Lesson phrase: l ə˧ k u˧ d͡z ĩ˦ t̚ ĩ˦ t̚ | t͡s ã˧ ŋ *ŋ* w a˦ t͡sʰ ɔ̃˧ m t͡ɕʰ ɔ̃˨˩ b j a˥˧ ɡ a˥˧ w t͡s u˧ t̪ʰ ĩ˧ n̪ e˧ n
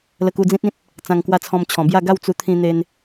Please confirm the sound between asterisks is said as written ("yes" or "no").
no